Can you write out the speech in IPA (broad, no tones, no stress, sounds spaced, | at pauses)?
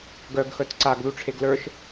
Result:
ɡ œ ɡ x œ t ǀ a ɡ ð u ʈ͡ʂʰ e ɡ l ə˞ ʃ